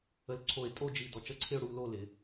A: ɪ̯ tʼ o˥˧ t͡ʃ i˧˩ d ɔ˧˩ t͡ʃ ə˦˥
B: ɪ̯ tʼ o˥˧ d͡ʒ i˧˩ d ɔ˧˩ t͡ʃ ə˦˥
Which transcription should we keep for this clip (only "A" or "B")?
B